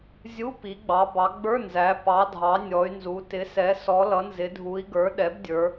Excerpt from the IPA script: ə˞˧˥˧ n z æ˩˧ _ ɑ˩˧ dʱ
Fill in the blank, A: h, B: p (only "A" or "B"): B